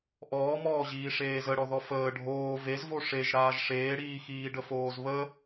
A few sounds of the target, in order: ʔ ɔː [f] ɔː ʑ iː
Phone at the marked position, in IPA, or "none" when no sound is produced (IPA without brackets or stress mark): m